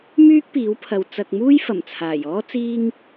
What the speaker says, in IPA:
myː˥k̚piː˨˥wpʰɐ˨w t͡sɐ˧k̚ muː˥j fɐ˨˩mt͡sʰaː˨˩jɔː˥ t͡siː˥ŋ

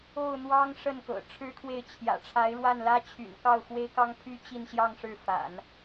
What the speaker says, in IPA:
o˥˩ʊ̯n̪wɑ˥ŋ ʂə˥˩nkɤ̰˨˩ ʈ͡ʂʰɻ̩˥kʰwe˥˩ɪ̯ t͡ɕʰjä̰˨˩ ʈ͡ʂʰa˧˥ɪ̯ɻwa˥˩nlä˥t͡ɕʰy̰˨˩n kɑ˥˩ʊ̯xwe˥ɪ̯kɑ˥ŋpʰy˥ t͡ɕi˥˧nɕjɑ˥˧ŋ ʂɻ̩˥˩fa̰˨˩˦n

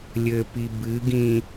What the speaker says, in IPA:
lʲɘpi bɨɡĩ

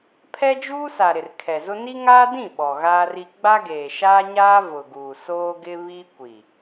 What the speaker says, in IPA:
pʰɛ˦d͡ʒuː˦sa˨ ɾɪ˨rkʰɛ˨zʊ˦ ni˦ŋaː˦dĩ˦˨ ɓɔ˨ɣaː˦ri˦ ɡ͡ba˦ɡeː˨ʃaː˦ɲaː˦ vʊ˨ɡuː˨soː˦ɡɪ˦ βi˦ kʷi˨

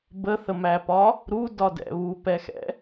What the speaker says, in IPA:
bəθəmæpɒ | ɾudɒdɛ̰ βupɛxɛ̰

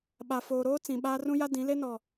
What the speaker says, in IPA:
ɓa˨foː˨ɾoː˦ t͡sĩ˨ɓaː˦ rũ˦ja˦dĩ˨˦le˦ nɔ˨

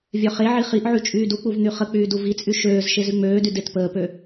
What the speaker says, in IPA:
vʲœχeʕi χiʔʕy t͡ʃʼyːduk͡puv n̪yχək͡pyː duvit͡sʼy ʃøːz ʃezyŋ͡møːdy detpəːpø

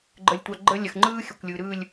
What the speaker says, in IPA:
ɡ͡ǃə˦lʲtʷa˦ ɡ͡ǃə˦lʲə˨x ŋ͡ǃɯː˦ xʲə˨kʷlʲɯ˨ ɾɯː˦˨lʲ

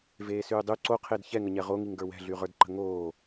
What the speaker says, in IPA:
veːsyːdˤy ǀoqʰed çɛŋəɲɛ ʁoŋiŋɡə˞ wɛ̤ɮyʁə˞dǃə̤ ŋoː

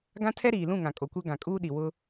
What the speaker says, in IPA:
ɡã˦tʰɛ˦ ɾiː˨lũ˦˨ ŋã˨kʼo˨kʷɛ˦ ɡã˨kʼuː˦ɗi˨ wʊ˦

